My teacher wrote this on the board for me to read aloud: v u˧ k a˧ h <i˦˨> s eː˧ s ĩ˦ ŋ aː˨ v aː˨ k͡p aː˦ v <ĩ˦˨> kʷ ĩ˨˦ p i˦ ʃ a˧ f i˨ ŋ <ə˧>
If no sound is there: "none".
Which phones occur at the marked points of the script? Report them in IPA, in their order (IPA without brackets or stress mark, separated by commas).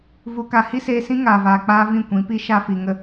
i˦, ĩ˦˨, ə˧